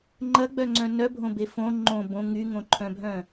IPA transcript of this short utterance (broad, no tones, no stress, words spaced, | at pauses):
ŋ͡ǃɐɡ͡bœŋ͡ǀœ̃ nœbʱõbe fõ ŋ͡ǃõ bõ ŋyŋõǃʰœ̃bʱœ̃